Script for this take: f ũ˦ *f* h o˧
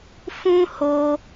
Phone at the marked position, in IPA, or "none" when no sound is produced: none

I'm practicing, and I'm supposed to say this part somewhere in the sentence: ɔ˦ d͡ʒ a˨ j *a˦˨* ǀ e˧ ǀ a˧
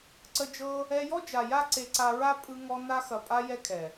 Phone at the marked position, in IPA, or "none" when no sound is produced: a˦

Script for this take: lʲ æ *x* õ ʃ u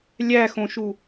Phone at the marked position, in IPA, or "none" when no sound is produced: x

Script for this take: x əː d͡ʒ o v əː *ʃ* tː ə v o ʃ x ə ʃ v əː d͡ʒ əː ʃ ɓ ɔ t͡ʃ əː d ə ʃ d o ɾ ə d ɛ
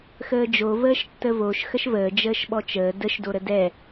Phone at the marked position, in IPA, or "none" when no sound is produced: ʃ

